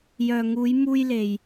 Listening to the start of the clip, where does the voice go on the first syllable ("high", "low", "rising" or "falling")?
low